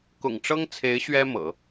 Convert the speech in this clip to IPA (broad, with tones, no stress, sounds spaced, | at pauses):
k ʊ̰˨˩ ŋ ʈ͡ʂ ɤ˥ ŋ t͡sʰ e˧˥ ɪ̯ ɕ ɥ ɛ˥ m ɤ̰˨˩˦